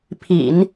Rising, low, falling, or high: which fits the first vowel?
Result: low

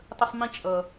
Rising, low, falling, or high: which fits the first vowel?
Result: high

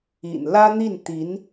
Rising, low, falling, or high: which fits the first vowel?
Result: low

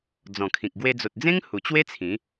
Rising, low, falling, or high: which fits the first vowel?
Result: low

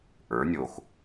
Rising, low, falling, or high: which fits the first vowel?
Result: rising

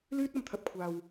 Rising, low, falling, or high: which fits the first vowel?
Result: high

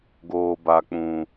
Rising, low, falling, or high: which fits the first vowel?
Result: high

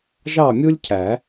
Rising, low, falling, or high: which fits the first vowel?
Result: falling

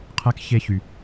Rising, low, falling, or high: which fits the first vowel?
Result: rising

